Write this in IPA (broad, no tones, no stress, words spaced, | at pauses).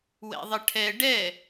wɛ̰ðˤəʈʰɛ ɖɛ